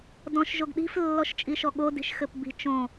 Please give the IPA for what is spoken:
dɔ̃ʃ ʒoɡɗi̤f lːɔʃt͡ʃʼiʃɔɠo di̤ʃxɘpbi̤ t͡ʃõ

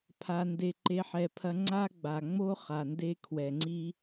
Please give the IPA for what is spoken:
pʰa˧nde˧ ǃe˦ħɛ˧pʰɐ˦ ŋ͡ǀa˦ɡ͡ba˨ŋ͡mo˦ χa˨nde˦kʰwɛ˨ŋ͡ǀi˦

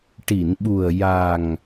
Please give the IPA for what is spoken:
ʈi˨˩˨nɓu˨˩ə̯ ja˨˩ŋ

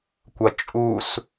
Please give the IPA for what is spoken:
kʷʌ t͡ʃʼus

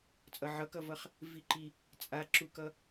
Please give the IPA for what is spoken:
t͡sʼʌʕʌkʌvʌχ | viǃi | t͡sʼaǁukʌ

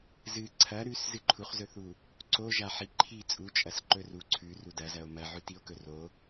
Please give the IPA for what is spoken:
zɨ ǀʰɐ ɾʉs zɨǃʰuχzɵθu | ǀoʒa ħiǃʰi t͡sʼut͡ʃʼɐs ǃɵru ǀʰʉ rudɐzɐo̯ mɐ ʕʉtio̯kɵro

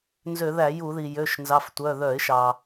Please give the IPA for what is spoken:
nzø˧˩˧ðæ˧˩˧ju˧˩˧ði˩ jø˩˧˩ʃ nzɑ˩˧˩ftʷœ˩˧˩ ðœ˧˩˧ɪ̯ʃɑ˩

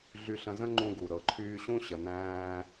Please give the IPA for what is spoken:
ɮy˧ɬə̃˧ zə̃˥ ŋ͡ǃũ˧ɡu˩ ɾɤ˩ǃʰyː˧ɕũ˥ ɕə˩næ̃ː˧

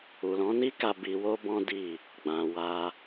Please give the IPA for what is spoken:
u˨lɔ̃˨˦ni˦ka˧ bi˧wo˦bɔ̃˦ di˦˨ | ɡ͡bã˨wa˧

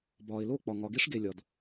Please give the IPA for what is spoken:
bɒː˨ɪ̯lo˦˨k͡pɒ˨ ŋɒ˨ɡe˦ʂɡe˨lʲɒ˨d

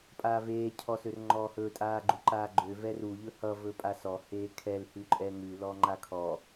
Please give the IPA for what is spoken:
pʼaːveː cʰɔsørŋ͡ǃɔːhɵ tʼaːɡ͡ǃuǃaːɡ͡ǃø vɛru ʎɵhʌ vɵpʼasɔ heːkʰɛl hʉǃʼɛŋʉ lɔŋ͡ǃakʰɔ

